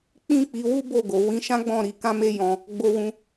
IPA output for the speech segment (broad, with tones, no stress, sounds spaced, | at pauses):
k͡p ĩ˦ k͡p i˧ w u˦ b o˦˨ ɡ o˨ w ĩ˨˦ ʃ ã˦ ɡ͡b ɔ̃˦˨ ɾ i˧ k ã˦ m e˦ j ɔ̃˧ | ɡ͡b o˧ w ũ˧